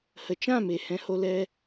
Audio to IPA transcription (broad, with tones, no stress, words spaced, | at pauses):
hə˨t͡ʃã˦˨me˨ hɛ̃˧ho˧lɛ˧